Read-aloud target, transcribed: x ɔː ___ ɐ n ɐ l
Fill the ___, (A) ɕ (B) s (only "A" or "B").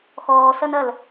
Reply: B